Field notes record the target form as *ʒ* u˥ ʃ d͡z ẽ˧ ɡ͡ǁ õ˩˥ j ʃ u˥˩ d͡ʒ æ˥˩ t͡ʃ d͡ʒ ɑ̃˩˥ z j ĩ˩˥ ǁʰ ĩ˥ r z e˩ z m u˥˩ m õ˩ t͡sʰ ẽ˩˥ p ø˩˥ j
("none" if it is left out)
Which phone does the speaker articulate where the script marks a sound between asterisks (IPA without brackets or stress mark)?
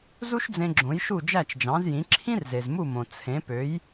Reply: z